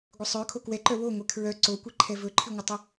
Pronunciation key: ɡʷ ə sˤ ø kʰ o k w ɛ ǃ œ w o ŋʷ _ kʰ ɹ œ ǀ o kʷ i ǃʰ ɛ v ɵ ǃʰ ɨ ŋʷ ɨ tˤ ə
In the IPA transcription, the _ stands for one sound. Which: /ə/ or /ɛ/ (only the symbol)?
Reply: ɛ